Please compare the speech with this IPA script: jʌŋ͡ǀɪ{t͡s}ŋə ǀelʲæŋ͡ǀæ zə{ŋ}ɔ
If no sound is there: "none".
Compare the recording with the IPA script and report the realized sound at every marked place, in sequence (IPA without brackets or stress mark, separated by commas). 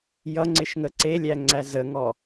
ʃ, ŋ